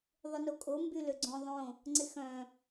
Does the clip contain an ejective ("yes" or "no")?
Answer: yes